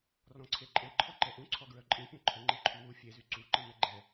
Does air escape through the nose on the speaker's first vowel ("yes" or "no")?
yes